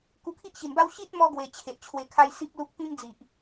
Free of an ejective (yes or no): yes